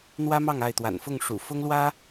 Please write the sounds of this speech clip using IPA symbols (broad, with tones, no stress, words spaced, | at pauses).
n̪wä˥mɑ˥˧ŋ a˥˩ɪ̯t̪wa̰˨˩nfʊ˥˩ŋʂṵ˨˩ fʊ˥ŋlwä˥